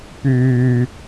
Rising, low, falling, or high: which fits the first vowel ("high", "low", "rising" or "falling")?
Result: low